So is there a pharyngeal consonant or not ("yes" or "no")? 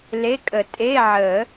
yes